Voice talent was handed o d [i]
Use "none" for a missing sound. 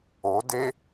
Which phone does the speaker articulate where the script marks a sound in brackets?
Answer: e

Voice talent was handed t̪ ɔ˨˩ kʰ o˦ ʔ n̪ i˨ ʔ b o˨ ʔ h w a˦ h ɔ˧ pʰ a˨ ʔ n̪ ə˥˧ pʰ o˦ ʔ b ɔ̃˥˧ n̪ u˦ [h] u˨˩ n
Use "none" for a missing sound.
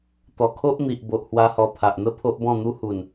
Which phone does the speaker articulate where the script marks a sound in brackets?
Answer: h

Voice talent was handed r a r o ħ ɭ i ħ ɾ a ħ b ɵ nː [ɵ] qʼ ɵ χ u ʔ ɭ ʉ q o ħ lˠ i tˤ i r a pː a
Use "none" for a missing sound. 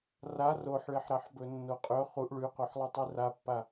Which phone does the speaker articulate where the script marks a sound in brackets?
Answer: o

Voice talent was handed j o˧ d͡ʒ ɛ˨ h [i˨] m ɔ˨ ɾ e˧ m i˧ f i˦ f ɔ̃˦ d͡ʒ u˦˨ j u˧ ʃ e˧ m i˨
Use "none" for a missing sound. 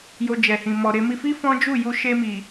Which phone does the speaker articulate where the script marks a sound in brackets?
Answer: ĩ˨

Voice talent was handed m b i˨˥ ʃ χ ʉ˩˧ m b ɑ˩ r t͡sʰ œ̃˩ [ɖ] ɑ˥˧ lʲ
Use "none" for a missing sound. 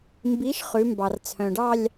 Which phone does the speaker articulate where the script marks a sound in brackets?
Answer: ɖ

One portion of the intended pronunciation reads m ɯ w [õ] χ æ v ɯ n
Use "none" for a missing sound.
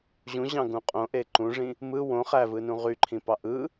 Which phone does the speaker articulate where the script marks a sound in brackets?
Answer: õ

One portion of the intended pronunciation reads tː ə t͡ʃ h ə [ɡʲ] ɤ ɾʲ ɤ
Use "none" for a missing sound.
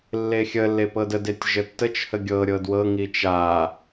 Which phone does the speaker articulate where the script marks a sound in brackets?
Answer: ɡʲ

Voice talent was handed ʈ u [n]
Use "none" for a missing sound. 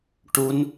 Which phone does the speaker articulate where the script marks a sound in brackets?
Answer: n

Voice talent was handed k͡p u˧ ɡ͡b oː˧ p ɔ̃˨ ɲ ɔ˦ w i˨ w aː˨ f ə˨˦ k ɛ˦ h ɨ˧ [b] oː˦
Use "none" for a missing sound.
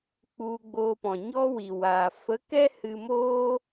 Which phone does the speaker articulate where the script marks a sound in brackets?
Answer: m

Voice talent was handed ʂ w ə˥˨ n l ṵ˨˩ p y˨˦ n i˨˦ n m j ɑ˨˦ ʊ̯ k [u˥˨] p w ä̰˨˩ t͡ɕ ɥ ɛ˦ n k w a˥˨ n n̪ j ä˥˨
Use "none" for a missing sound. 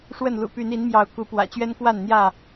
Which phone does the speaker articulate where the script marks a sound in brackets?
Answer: u˨˦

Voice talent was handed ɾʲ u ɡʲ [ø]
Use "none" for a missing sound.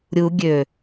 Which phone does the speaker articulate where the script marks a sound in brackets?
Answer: ø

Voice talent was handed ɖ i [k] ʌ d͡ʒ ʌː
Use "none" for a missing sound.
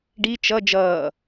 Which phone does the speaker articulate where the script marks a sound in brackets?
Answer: t͡ʃ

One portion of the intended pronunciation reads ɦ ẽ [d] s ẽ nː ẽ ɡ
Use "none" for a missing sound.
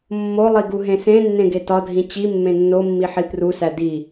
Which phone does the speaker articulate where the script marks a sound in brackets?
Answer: none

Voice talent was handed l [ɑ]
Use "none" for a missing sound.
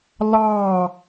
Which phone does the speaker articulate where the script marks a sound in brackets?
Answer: ɑ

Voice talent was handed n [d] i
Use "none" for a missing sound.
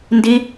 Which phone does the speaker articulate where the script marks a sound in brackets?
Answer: d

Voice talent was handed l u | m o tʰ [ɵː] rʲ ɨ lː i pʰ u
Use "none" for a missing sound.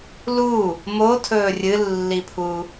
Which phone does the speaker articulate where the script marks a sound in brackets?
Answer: ɵː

